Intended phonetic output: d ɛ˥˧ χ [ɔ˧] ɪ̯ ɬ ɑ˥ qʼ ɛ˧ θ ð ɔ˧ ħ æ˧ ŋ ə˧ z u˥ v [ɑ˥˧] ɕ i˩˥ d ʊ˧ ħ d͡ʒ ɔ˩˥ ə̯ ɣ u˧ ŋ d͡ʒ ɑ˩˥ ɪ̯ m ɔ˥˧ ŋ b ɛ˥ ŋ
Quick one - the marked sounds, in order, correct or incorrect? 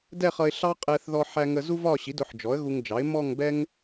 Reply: incorrect: ʌ˧, incorrect: ɒ˥˧

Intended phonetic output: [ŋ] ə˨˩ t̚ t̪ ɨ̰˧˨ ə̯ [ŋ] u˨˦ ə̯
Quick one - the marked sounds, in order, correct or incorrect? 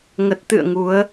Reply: correct, correct

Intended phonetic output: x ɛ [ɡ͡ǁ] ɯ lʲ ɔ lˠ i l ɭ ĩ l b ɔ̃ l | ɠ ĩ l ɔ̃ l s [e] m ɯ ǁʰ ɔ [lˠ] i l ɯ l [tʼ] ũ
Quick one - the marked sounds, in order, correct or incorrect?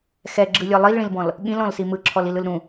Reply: correct, incorrect: i, incorrect: l, incorrect: ɾ

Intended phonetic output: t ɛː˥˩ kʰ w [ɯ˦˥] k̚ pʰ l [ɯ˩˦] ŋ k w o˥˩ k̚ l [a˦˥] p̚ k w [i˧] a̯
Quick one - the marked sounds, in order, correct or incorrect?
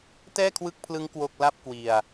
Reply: correct, incorrect: ɯ˦˥, incorrect: a˥˩, correct

